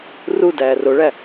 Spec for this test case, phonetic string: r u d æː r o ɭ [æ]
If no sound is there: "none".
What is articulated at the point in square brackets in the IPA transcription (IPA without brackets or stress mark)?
æ